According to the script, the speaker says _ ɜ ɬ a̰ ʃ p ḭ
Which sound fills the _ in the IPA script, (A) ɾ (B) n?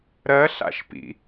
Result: A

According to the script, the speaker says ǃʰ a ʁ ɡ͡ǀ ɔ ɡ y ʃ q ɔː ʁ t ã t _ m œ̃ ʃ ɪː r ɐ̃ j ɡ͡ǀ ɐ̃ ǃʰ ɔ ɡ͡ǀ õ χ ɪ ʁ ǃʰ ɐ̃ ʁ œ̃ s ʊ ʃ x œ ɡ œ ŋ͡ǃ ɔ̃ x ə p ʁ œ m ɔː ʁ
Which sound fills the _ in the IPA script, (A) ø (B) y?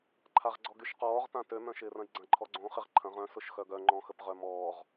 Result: A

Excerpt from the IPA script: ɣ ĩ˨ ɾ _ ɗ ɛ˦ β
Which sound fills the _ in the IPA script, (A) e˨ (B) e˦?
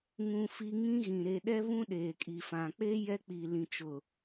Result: A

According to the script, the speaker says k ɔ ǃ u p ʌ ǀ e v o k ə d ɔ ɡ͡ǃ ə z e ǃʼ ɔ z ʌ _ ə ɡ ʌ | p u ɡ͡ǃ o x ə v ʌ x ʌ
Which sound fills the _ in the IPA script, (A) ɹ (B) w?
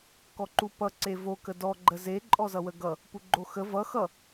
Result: B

